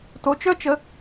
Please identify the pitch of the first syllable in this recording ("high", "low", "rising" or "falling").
rising